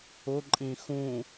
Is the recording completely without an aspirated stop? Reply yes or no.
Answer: yes